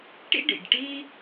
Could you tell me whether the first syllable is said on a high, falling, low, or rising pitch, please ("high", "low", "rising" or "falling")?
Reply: high